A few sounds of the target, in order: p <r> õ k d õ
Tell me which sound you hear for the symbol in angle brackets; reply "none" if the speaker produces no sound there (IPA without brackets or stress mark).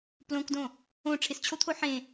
l